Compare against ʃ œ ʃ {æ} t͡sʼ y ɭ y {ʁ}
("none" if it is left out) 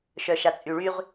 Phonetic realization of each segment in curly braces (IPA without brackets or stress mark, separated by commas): a, ʁ